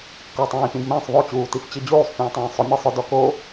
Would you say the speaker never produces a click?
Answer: yes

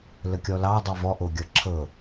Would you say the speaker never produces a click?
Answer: no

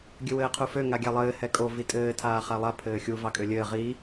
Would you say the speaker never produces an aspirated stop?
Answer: no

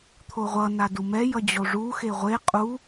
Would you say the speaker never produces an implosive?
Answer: yes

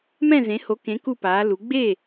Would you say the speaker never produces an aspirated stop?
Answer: yes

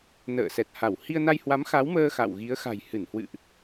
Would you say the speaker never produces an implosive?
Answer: yes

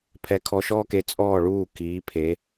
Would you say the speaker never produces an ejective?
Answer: no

